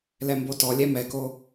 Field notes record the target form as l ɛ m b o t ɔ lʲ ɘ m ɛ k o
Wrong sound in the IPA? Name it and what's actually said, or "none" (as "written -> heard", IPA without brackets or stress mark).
ɘ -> ɛ